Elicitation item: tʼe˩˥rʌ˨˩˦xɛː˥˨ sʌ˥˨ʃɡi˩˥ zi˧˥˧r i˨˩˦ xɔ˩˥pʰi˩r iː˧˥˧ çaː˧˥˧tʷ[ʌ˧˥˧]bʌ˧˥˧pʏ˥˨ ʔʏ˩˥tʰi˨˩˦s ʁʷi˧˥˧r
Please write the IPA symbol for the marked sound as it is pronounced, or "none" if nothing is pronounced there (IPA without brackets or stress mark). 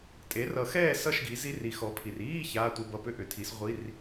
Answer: ʌ˧˥˧